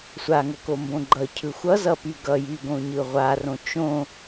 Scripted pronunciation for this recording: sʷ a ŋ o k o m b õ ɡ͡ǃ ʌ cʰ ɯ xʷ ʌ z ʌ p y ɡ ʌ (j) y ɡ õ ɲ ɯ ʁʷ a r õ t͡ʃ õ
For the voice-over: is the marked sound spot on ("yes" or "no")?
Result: yes